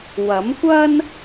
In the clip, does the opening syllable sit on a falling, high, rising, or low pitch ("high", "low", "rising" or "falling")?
rising